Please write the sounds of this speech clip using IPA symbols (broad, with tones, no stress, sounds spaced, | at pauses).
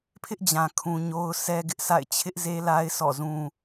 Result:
pʰ ɪ˦ ʔ d͡ʑ ã˨ kʰ ũ˨ ɲ o˦ ʊ̯ sʰ ɛ˦ ɡ ɪ˦ ʔ s a̰˦˨ ɪ̯ t͡ɕʰ ɪ˦ ʔ z e˦ l a˦ ɪ̯ sʰ ɔ̰˦˨ z ũ˦